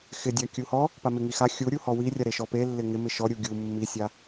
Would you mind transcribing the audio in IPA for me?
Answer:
xɪdʲa kʲuhɔ | pamɪŋixa xʲuɾʲuhɔ wirʲaɾe ʃɔpelːɪ ŋɪ mɪʃɔ ɾʲuɡʲu mːisʲa

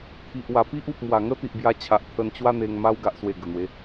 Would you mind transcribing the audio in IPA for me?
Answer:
t̪ʰi˨ʔwa˨˩ pi˦ʔu˨p̚mwa˨˩ ŋə˦t̪i˨ʔbja˧t͡ɕʰa˨ʔ t̪ʰə˧nt͡ɕwa˦n̪e˧ŋ ma˧wɡa˨ʔswe˨˩ ɡə˨˩n̪we˨˦

